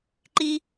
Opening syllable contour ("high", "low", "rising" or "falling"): high